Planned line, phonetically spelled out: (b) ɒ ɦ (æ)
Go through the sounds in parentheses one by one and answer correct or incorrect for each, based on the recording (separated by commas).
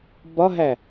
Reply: correct, correct